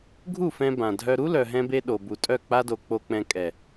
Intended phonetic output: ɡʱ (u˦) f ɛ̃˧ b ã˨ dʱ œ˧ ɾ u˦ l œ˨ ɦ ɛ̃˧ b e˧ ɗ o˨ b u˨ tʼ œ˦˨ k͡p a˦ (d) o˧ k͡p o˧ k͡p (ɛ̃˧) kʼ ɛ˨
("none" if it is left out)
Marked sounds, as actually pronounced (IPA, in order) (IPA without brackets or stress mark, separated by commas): u˦˨, d, ɛ̃˧